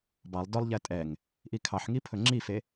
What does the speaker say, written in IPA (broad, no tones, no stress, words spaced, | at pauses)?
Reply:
bɑlˠ dœlˠʎɛ tʼɛŋ | ʔikʰɑħŋi pʰɵŋ͡ǁife